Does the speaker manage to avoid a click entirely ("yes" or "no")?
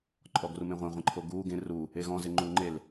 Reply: no